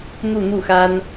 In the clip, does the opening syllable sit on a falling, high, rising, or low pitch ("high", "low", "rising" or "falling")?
falling